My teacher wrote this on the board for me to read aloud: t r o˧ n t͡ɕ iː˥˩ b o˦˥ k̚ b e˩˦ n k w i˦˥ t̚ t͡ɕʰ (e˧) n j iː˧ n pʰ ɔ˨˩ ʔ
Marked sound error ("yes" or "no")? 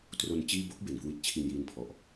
yes